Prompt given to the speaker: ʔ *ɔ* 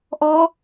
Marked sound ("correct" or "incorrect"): correct